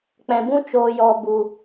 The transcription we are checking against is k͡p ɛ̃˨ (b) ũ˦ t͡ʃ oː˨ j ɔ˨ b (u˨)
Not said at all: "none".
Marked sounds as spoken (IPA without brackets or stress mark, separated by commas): b, u˨